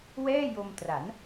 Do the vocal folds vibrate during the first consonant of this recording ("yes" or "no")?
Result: yes